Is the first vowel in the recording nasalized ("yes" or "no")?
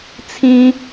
yes